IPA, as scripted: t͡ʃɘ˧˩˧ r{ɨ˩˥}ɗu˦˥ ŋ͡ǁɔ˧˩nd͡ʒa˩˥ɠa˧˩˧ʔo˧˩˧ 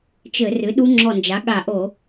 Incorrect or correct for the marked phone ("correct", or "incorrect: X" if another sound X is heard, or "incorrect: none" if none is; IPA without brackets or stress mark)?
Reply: correct